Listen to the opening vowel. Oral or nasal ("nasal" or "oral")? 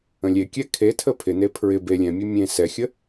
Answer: nasal